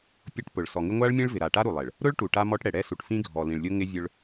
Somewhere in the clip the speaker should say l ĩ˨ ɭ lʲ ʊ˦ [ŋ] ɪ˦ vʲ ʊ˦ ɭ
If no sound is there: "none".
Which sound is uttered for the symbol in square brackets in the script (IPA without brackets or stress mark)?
ŋ